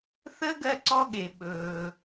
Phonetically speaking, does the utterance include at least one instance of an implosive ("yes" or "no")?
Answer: yes